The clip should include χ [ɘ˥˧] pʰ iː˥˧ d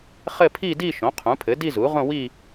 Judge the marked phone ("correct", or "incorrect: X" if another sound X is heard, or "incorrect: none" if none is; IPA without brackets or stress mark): correct